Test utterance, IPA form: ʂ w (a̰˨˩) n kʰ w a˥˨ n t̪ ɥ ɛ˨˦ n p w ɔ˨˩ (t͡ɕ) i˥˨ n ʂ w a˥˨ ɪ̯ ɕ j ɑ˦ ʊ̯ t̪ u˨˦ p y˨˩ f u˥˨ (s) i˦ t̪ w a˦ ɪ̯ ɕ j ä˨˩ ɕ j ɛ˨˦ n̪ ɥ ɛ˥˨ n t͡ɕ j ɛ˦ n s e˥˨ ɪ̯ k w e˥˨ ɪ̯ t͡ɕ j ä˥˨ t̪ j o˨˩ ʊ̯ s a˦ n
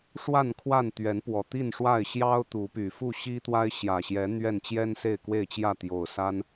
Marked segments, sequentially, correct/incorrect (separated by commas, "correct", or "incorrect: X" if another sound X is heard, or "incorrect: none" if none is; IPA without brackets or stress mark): incorrect: a˥˨, incorrect: t̪, incorrect: ɕ